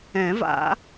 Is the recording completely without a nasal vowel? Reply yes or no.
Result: no